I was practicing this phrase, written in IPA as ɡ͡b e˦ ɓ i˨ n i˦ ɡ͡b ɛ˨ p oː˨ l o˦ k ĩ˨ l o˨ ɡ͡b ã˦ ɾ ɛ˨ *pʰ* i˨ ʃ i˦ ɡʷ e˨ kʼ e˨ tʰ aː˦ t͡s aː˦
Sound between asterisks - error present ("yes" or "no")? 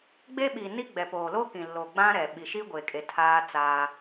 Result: yes